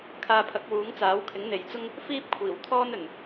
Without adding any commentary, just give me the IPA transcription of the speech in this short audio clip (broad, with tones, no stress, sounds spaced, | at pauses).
kʰ aː˧ pʰ ɐ˨˥ k̚ w uː˨˥ ŋ t͡s aː˨˥ w kʰ ɪ˨˥ ŋ n̪ e˨ j t͡s ʊ˥ ŋ | f iː˥ p̚ kʷʰ iː˨˩ w t̪ʰ ɔː˥ n ɵ˨˩ n